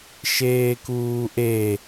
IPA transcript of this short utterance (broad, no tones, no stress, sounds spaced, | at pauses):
ʃ eː k uː ʔ e